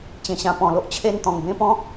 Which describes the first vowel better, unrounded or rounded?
unrounded